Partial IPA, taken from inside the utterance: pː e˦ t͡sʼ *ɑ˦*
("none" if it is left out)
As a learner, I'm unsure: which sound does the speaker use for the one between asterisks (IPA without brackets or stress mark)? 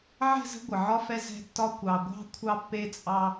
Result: ɑ˦